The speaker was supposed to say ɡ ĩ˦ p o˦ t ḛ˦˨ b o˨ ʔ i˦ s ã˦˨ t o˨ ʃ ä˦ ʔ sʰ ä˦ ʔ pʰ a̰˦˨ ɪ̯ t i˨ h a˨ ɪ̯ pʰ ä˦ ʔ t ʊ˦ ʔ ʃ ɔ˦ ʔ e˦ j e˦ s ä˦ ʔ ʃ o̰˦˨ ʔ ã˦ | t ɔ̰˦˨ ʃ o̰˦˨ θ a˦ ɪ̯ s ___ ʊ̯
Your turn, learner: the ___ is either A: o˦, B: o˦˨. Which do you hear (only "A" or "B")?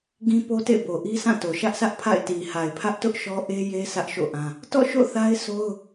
A